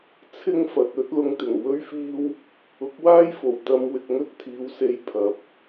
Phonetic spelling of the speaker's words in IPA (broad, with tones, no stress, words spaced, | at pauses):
t͡sʰɪ˥ŋfɐ˨t̚ ɵ˨˥t̚lʊ˧ŋt̪ɪ˨˩ŋ wɵ˥ɥfiː˥w | ʊ˨˥k̚waː˥jfo˨˩w t̪ɐ˧m wɪ˨k̚ŋɵ˥t̚t̪ʰiː˨˧wse˧j pʰɐ˨p̚